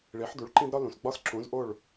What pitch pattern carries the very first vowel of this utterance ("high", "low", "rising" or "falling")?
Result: rising